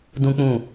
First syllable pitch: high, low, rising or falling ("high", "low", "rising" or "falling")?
high